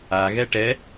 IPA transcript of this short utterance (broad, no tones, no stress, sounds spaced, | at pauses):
a ɣ ɛ ʈ ɛ